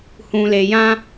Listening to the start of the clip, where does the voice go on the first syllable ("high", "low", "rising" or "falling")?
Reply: low